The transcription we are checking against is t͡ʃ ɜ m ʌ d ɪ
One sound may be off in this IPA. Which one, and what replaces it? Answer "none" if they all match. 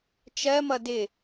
none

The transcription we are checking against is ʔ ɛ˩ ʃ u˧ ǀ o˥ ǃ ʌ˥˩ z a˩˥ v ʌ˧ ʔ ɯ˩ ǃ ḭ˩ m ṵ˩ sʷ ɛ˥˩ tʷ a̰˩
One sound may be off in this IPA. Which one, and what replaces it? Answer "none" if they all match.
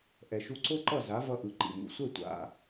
none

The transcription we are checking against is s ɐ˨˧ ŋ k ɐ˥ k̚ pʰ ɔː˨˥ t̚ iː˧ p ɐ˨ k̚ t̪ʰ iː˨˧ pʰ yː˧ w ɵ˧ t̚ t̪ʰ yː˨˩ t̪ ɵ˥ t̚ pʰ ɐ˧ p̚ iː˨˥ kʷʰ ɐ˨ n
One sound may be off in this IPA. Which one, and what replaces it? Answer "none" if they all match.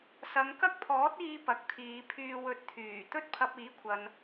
none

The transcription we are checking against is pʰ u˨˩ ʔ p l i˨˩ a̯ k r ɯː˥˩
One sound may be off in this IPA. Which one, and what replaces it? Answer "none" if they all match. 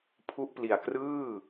u˨˩ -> u˦˥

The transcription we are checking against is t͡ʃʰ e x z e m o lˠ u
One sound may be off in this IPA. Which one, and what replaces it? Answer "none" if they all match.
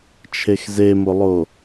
u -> o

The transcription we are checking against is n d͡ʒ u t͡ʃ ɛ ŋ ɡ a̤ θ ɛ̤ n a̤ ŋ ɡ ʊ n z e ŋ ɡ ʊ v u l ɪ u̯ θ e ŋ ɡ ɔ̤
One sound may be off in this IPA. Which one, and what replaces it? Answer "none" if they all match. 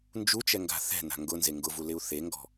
none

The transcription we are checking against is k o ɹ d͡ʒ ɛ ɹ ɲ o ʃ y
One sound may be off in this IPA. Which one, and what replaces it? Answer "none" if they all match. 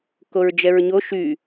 none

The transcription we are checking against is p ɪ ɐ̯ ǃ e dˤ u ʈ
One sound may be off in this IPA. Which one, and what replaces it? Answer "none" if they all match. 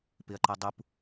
ʈ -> p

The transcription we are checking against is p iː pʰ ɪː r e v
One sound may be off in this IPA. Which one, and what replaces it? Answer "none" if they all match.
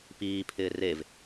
none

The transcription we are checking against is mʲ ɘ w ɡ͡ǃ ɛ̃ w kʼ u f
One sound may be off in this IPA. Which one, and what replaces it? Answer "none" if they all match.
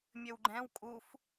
none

